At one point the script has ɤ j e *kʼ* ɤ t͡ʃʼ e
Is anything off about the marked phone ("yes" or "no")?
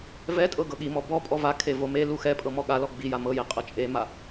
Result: yes